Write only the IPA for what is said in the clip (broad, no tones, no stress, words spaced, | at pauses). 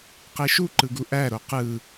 qeʃuǃɯɡu ʔæɾo qɯ